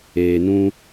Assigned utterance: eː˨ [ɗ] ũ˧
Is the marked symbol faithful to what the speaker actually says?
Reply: no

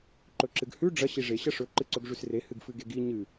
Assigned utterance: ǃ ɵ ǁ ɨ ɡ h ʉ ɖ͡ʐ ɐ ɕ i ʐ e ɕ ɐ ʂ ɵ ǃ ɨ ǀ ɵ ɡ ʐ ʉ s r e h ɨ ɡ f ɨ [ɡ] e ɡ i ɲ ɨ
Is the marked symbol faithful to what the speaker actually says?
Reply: yes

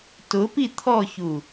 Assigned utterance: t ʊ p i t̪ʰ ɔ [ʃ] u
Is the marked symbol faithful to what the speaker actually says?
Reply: no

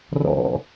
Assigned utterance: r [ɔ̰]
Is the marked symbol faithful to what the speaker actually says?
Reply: yes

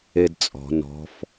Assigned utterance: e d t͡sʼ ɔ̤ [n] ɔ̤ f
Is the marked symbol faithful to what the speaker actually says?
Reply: yes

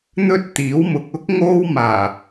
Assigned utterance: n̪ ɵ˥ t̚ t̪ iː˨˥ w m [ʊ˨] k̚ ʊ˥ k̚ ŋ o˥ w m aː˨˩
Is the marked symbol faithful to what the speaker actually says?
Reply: yes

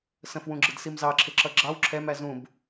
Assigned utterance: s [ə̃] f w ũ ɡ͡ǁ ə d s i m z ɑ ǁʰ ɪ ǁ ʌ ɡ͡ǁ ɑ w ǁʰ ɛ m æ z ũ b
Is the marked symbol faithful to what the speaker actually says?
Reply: yes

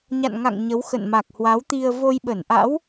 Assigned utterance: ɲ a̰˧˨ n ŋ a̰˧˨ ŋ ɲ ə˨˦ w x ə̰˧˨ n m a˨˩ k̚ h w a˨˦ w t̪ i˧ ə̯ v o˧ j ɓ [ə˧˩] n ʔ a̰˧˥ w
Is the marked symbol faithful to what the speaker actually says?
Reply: yes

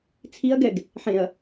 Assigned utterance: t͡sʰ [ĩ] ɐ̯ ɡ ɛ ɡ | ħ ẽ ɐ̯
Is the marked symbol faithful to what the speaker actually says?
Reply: no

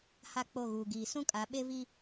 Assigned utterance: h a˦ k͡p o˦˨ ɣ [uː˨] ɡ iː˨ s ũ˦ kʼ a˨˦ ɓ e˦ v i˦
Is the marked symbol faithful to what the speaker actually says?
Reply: yes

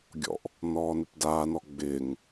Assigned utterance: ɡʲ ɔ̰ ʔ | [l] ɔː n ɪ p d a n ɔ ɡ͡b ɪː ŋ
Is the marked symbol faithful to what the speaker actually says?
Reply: no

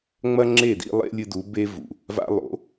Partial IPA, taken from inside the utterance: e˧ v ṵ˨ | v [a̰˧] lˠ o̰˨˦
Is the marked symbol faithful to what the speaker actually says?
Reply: yes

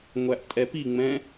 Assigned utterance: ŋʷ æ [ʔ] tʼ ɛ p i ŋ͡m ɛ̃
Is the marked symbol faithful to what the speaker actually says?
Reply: yes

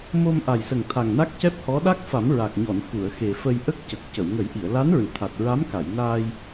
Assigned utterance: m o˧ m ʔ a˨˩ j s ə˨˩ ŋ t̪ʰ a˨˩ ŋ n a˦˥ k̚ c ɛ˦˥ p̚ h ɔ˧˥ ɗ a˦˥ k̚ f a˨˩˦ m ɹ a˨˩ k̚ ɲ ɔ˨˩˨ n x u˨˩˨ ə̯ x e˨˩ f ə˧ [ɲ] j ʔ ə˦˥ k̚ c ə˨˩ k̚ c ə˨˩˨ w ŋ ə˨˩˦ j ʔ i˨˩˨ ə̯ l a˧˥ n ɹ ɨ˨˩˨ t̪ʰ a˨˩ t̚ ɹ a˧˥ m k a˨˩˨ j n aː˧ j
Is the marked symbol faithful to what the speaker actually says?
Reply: no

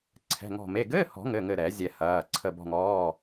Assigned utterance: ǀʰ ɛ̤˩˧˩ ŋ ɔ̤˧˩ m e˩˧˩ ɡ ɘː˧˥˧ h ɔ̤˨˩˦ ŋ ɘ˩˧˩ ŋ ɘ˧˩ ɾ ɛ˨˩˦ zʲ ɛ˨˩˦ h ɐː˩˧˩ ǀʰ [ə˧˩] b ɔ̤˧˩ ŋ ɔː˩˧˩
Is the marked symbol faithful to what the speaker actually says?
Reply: yes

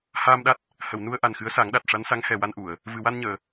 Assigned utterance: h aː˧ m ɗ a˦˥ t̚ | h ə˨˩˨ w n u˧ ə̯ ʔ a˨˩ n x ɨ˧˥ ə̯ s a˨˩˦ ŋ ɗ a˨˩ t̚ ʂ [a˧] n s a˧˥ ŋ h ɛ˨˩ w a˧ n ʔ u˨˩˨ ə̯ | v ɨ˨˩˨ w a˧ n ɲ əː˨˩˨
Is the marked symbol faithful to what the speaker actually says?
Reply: no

